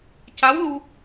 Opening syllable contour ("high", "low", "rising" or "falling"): rising